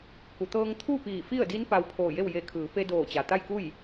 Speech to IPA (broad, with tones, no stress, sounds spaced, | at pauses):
k u˩ t̪ ɤː˧ ŋ t̪ʰ uː˥˨ p iː˧˩ f i˥˨ ə̯ d i˧˥ n p a˧ w pʰ oː˧˩ j e˥˨ w j e˧˩ kʰ ɯː˩˧ p e˧ d oː˧˩ t͡ɕ a˩ t̪ a˥˨ j k u˥˨ j